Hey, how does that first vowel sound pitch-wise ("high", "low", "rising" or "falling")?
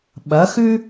rising